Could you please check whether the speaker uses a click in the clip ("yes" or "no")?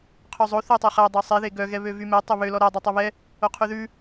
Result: no